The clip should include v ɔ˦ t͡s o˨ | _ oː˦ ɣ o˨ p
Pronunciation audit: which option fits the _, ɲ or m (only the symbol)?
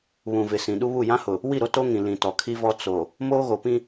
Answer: m